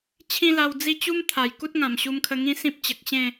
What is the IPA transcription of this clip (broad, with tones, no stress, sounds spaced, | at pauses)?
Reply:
t͡ɕʰ ĩ˦ l a˧ w d͡z i˥˧ t͡ɕ u˦ m t̪ʰ a˨˩ j k u˦ t̚ ŋ ã˨˩ m ɕ u˧ m kʰ ə˧ ŋ ĩ˦ s ĩ˦ p̚ t͡ɕ ə˨ k̚ ɕ ẽ˥˧